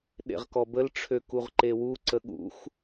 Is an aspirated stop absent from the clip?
no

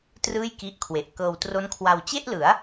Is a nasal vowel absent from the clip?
yes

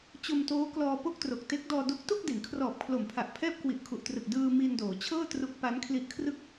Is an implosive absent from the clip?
yes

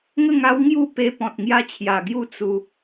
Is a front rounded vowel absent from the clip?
yes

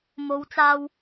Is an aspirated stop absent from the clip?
yes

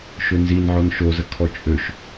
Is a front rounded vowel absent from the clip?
no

